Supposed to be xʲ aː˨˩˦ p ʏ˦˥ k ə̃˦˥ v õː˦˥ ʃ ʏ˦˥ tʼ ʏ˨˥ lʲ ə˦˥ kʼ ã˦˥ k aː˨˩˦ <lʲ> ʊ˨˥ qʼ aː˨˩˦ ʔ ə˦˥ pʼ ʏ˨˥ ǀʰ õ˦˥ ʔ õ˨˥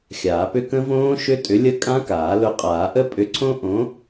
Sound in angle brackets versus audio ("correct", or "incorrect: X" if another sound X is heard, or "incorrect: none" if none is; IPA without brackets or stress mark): incorrect: l